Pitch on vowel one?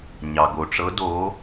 low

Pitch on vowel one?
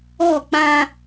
falling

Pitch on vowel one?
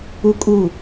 high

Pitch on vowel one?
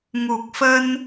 low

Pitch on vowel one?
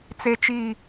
low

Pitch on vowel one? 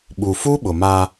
low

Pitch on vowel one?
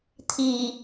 low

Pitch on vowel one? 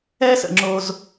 high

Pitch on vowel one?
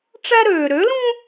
high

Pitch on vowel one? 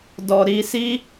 low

